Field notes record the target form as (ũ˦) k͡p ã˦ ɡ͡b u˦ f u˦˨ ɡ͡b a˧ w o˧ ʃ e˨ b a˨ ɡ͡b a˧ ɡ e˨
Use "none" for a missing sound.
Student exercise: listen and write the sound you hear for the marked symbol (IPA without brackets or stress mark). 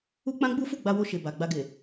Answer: u˦